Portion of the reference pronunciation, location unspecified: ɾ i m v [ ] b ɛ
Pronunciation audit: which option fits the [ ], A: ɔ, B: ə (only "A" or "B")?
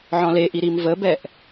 B